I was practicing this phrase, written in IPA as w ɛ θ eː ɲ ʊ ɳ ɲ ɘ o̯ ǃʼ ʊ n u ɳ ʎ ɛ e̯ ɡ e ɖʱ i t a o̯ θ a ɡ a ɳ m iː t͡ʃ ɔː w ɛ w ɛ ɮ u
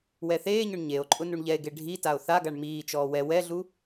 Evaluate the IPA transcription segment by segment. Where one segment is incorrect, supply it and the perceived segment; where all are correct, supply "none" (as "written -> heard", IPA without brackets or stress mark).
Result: ɘ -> e